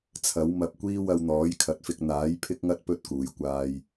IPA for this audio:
t͡sʰ ɐ˨˥ w m ɐ˧ p̚ kʷ iː˥ w ɐ˧ w n̪ ɔː˨˥ j kʰ ɐ˨˥ t̚ f ɪ˧ k̚ n̪ aː˨˥ j pʰ ɪ˥ k̚ ŋ ɐ˥ t̚ p ɵ˥ t̚ k uː˨ j kʷ aː˧ j

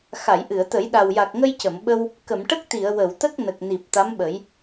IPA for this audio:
x a˨˩˨ j ʔ ɨ˨˩˨ ə̯ t̪ ə˨˩˦ j ɗ a˨˩ w j a˨˩ k̚ ŋ ə˧ j c ə˨˩˨ m ɓ ə˧ w | k ə˨˩˨ m ʈ ə˦˥ k̚ t̪ i˨˩˨ ə̯ w ə˨˩˨ w t̪ ə˦˥ k̚ n ə˨˩ k̚ n i˨˩ p̚ t̪ a˧˥ m ɓ ə˨˩˦ j

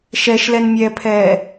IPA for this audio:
ʃ ɛ ʃ l ɛ n mʲ ɛː pʰ ɛː

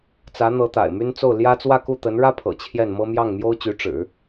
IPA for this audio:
t͡s ä˧˥ n̪ ɤ˧˥ t̪ a̰˨˩ ɪ̯ m y˥ n t͡s o˥˩ ʊ̯ l j ä˥ t͡s w ä˥˧ k u˥˩ t̪ ə˧˥ n ɻ ä˥ pʰ ɤ̰˨˩ t͡ɕʰ j ɛ˥˩ n m ɤ˥ m j ɑ˥˩ ŋ m j o˥ ʊ̯ t͡ɕ y˧˥ ʈ͡ʂ ɻ̩˨˩˦

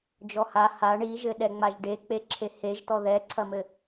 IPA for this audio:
d͡ʒ ɔ h a h a ɳ i ʒ ɘ ɗ ɛ ŋ͡m a ʒ ɖ e k͡p e ǁʰ e h e ʒ t̪ ɔ ð ɛ ǀʰ ɐ m ɘ

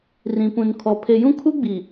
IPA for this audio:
r ĩ˨ p ũ˨ n kʰ ɔ˨ pʰ e˨ j ũ˦ kʰ u˦ ɡ͡b i˨

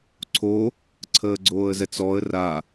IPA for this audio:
ǀʰ o | ǀʰ əː ɡ͡ǀ oː ə̯ z ɛ t͡s ɔ ə̯ r a

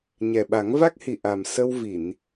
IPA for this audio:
ɲ ɛ˨˩ ɓ a˨˩˦ ŋ v a˦˥ k̚ h i˨˩ ʔ a˨˩ m s ə˧ w v i˨˩˨ n

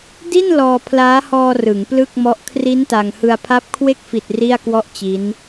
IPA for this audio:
d i˥˩ n l ɔː˧ pʰ l aː˦˥ h ɔː˧ r ɯ˩˦ ŋ p l ɯ˥˩ k̚ m ɔ˦˥ ʔ kʰ r i˦˥ n t a˧ ŋ h ɯ˧ a̯ pʰ a˥˩ p̚ kʰ w e˥˩ k̚ f i˨˩ t̚ r i˥˩ a̯ k w ɔ˥˩ ʔ t͡ɕ i˦˥ n

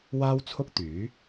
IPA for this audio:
w aː˥ w t͡sʰ ʊ˥ k̚ t̪ yː˨˥

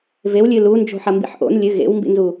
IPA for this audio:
v e w lʲ ɨ l u n d͡ʒ o̤ ħ ɐ m b ḭ ħ ʔ o̰ n lʲ ɨ ɣ ḛ w m b ḭ n z u

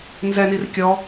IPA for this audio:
n z ɛ n i r kʲ ɔ

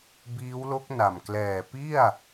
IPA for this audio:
b iː˦˥ w l o˦˥ k̚ n a˨˩ m k l ɛː˨˩ p i˥˩ a̯

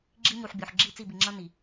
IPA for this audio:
ɡ͡ǁ i˦ ɲ u˨ ħ bʲ o˨ ħ ɡ͡ǁ i˦˨ t͡s i˦˨ b i˨ ŋ͡ǁ ʌ˦ n i˨

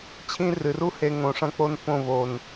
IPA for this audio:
t͡ɕʰ ĩ˦ r ɨ˨ r u˦ h e˧ ŋ õ˨ ʂ ɐ̃˧ k͡p o˧ n p õ˦˨ v o˨ n

